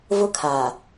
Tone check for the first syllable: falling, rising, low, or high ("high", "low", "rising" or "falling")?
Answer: high